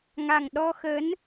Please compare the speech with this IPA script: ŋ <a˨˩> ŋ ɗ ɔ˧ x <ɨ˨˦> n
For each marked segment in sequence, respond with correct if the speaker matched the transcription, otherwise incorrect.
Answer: correct, incorrect

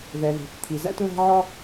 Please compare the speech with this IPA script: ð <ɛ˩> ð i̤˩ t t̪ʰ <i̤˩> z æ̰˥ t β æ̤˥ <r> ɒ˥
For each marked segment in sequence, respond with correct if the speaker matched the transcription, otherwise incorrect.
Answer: correct, incorrect, incorrect

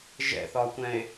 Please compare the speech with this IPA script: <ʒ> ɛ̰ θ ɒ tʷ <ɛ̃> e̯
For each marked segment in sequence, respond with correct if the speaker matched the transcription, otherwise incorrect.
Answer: correct, correct

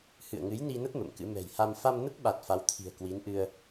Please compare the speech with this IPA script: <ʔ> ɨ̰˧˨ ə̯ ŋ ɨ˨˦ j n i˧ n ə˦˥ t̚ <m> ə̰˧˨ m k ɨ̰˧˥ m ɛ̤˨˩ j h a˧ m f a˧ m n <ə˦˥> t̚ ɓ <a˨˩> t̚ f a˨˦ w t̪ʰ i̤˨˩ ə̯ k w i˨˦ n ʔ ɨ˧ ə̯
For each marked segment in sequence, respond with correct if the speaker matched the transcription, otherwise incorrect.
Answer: incorrect, correct, correct, correct

